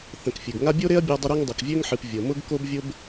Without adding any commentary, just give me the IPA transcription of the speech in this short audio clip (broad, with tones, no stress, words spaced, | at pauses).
θə̃˨k fʲɨ˩ɡ ŋa˦bʲo˥ɾe˥ɐ̯ bʲɤ˦ dˤʊ˦ɾe˦ŋ dˤʊ˨kvʲø˥ŋħɨ˨p vʲɤ˩mʊ˥ɡ ko˦bvʲʊ˦b